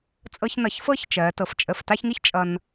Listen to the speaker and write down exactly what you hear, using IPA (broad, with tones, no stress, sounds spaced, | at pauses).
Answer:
t͡sʼ ɤ˧ ç n ʌ˩˧ ç f ɤ˥˧ ç t͡ʃ ɜ˩˧ t ɤ˩˧ f t͡ʃʼ ə˧˩ f t a˥˧ ç ŋ i˥ ç t͡ʃʼ ʌ˧ n